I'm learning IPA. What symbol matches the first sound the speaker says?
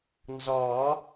n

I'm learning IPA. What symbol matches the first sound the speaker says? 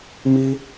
m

